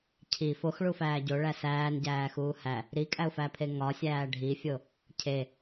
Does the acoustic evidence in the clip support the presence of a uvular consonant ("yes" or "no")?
no